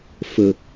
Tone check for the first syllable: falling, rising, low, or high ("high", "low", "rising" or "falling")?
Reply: low